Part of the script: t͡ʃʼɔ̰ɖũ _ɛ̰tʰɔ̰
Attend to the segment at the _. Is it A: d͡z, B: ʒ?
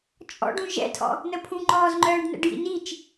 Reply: B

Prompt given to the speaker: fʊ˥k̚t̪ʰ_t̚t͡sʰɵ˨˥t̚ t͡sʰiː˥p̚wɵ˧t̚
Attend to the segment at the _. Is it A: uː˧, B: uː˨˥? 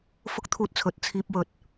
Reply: A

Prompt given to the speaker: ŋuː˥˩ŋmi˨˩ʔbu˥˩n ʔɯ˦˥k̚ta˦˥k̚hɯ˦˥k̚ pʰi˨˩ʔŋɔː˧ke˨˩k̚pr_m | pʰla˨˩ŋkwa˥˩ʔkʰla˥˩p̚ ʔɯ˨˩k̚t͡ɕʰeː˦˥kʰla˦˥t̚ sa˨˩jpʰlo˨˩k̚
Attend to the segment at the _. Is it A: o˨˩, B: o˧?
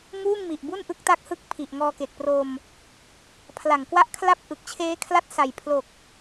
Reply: B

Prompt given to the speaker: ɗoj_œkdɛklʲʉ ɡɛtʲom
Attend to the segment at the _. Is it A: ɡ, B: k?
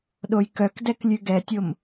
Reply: B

